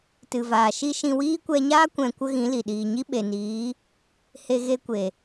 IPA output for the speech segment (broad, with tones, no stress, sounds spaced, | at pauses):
t ɨ˨ v aː˨ ʃ i˦ ʃ ĩ˧ w iː˦ kʷ ɛ˧ ɲ aː˦ kʷ ɛ̃˨ kʷ ə˦ ɣ ĩ˨˦ l i˨ ɗ iː˨ ɲ i˦ ɓ e˨ n iː˨˦ | h e˧ ɣ e˧ kʷ e˨